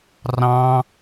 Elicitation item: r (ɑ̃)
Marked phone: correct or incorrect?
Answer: correct